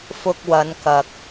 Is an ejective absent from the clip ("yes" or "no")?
yes